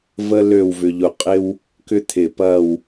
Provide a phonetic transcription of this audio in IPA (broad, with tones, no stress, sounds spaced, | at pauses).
v ə˥ l ø˥˧ w v ʏ˧ ʎ ʊ˧˩ qʼ ɪ˥ w | k ʏ˥ t̪ʰ ɪ˧˩ p ɐ˥˧ w